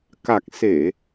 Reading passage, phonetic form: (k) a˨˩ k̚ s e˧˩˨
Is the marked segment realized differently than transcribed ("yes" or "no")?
no